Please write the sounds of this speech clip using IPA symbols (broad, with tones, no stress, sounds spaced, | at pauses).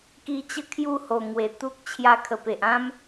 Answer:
k i˧ t͡ɕ ə˦ kʰ j u˥˧ h o˨˩ ŋ w e˨˩ t̪ u˦ k̚ t͡ɕʰ j a˧ kʰ ə˨˩ p e˨ ʔ ã˦ m